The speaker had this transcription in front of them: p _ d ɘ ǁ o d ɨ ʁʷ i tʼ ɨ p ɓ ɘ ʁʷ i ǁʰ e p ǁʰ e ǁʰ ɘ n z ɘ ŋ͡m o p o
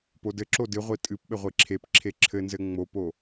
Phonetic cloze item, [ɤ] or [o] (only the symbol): o